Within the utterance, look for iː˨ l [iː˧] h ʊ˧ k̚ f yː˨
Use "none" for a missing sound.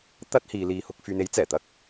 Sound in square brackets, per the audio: iː˧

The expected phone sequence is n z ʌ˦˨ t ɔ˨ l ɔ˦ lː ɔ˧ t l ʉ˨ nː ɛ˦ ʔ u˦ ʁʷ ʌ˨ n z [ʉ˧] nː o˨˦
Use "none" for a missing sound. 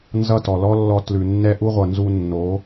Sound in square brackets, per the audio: u˧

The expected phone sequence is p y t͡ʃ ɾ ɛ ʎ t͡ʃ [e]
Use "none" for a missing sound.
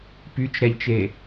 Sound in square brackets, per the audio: e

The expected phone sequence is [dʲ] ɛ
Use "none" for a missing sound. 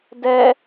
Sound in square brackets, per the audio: d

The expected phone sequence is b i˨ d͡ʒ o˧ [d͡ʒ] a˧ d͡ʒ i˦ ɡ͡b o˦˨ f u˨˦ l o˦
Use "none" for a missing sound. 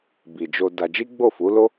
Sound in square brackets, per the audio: d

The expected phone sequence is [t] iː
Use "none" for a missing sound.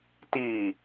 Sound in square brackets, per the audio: t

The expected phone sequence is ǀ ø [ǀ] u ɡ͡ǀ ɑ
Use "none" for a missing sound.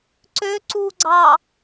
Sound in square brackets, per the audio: ǀ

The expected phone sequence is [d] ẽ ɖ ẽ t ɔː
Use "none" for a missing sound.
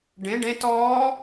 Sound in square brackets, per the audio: ɖ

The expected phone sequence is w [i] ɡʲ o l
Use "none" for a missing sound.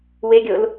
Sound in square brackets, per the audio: e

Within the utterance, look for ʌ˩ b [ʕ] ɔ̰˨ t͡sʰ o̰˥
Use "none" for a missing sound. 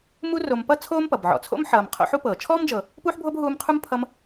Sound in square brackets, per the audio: ʕ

